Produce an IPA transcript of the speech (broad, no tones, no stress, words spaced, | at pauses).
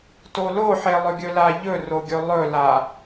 toloħelˠɵ ɡʲɵlaʎɵ roɡʲɵlˠɵla